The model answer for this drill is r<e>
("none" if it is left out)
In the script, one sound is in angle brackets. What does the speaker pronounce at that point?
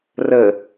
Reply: ɘ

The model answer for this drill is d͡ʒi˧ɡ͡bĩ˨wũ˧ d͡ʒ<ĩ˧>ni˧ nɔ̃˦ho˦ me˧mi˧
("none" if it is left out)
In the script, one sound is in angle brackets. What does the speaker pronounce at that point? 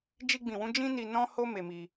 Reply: ĩ˦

